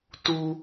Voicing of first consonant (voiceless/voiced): voiceless